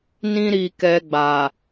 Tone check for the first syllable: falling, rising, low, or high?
high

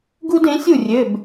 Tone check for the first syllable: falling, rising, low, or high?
high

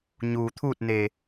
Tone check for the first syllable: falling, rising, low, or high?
low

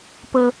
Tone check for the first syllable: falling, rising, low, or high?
high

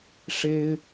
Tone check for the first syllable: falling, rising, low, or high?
high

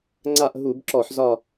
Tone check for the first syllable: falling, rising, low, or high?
falling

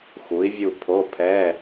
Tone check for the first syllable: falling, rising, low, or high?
rising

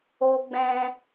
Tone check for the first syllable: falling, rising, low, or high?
low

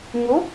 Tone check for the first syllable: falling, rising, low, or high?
rising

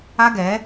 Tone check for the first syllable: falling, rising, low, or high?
high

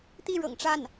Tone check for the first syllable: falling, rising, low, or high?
falling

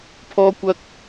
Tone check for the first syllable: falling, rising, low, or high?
high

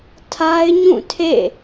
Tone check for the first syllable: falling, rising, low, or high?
high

